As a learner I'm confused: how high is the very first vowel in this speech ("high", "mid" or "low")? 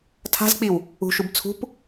low